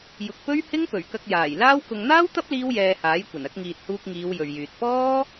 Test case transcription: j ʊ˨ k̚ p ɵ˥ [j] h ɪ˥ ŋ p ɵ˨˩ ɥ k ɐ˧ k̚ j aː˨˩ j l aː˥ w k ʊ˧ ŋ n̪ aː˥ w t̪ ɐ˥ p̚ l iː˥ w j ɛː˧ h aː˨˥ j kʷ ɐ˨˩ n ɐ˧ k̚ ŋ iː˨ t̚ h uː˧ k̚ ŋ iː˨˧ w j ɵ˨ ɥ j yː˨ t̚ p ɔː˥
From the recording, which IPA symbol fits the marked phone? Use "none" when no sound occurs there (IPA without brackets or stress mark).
ɥ